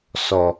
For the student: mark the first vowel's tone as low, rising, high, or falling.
low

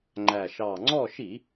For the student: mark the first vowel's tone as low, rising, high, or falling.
low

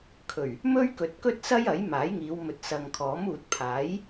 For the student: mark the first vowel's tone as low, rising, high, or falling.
low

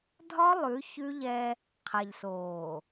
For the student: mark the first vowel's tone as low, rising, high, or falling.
high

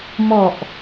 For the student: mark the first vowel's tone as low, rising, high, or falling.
low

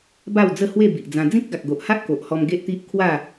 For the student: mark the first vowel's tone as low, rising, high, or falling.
falling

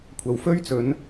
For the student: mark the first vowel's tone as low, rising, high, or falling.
low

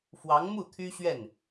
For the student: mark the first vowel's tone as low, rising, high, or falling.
rising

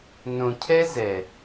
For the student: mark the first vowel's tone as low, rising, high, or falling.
low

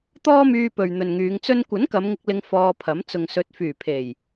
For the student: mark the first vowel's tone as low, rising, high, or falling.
high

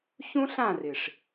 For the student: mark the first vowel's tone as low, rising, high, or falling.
high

